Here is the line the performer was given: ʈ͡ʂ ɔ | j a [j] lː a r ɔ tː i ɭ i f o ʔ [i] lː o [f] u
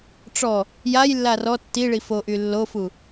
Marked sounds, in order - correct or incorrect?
correct, incorrect: y, correct

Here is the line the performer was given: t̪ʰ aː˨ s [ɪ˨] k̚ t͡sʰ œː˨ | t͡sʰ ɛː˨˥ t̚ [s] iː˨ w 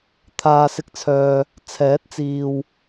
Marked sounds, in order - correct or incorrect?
correct, incorrect: t͡s

